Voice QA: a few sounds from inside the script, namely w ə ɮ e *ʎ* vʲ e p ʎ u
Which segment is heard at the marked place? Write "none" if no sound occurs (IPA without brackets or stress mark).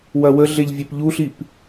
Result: ʎ